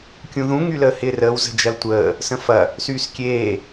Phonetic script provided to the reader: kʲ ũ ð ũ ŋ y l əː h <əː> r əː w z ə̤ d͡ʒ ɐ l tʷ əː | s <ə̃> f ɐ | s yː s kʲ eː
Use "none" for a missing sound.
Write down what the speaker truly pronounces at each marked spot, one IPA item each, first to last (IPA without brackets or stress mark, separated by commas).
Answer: ɪː, ə̃